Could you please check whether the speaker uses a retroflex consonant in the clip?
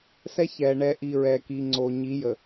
yes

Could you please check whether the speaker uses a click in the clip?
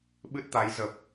no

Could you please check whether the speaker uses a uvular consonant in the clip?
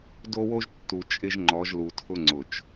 no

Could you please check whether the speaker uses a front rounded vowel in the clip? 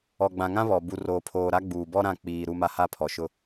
no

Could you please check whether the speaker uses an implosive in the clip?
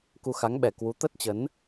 yes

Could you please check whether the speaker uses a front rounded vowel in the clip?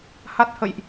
no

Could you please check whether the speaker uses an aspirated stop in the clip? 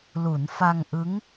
no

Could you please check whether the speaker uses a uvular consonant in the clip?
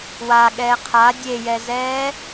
yes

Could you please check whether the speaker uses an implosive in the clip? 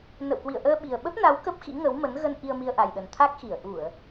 yes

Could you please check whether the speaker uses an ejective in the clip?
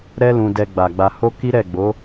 no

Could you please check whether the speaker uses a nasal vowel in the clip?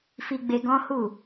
yes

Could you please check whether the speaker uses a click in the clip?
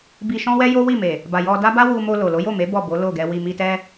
no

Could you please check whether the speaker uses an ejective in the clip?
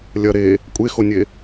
yes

